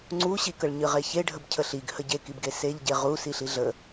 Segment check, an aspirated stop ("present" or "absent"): present